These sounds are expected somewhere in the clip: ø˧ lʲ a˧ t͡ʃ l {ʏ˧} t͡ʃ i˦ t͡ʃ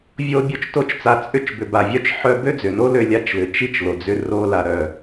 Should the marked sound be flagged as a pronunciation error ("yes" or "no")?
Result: yes